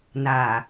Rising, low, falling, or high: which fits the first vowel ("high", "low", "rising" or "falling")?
low